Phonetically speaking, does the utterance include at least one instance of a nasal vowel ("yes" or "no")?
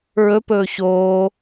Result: no